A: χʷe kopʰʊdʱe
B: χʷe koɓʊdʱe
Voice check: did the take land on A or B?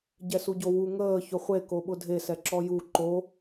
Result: B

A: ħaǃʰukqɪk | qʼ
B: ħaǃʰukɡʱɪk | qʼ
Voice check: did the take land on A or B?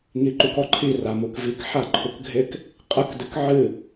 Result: B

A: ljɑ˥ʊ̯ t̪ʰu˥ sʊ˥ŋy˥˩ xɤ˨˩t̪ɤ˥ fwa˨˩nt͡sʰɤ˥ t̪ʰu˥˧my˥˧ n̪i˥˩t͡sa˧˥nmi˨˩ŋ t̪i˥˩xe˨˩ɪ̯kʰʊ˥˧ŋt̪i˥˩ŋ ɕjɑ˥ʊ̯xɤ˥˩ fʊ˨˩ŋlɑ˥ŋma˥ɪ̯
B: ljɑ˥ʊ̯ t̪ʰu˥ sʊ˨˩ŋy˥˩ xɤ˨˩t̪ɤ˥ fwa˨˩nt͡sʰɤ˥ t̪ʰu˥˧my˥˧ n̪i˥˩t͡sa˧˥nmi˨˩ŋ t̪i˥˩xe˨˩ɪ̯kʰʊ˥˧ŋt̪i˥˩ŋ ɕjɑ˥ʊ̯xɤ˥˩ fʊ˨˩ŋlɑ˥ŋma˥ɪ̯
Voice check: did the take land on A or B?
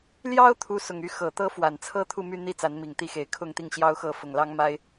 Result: B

